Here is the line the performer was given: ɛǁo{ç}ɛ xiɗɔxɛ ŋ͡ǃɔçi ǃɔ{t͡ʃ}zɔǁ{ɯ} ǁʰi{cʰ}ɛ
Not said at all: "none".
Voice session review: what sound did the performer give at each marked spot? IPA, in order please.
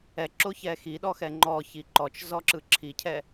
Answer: ç, t͡ʃ, ɯ, cʰ

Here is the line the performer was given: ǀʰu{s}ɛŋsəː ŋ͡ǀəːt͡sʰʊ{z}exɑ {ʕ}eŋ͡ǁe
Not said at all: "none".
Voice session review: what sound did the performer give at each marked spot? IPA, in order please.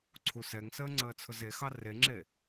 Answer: s, z, r

